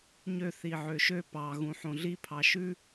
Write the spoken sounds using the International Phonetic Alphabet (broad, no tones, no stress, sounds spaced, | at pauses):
ɲ ø θ i ʕ ø ʃ ø p ɑ ɣ ũ ħ õ ɮ i pʰ ɑ ʃ ʉ